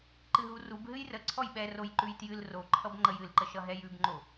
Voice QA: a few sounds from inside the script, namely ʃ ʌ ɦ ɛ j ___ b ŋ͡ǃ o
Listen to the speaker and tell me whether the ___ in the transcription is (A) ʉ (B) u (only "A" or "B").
A